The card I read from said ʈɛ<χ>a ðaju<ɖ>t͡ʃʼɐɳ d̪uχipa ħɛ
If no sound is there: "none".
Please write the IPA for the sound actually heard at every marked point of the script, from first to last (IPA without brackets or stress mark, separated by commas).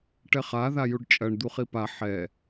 χ, ɖ